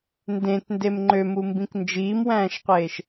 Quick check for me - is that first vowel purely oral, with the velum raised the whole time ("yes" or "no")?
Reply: no